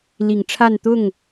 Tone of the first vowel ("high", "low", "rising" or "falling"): low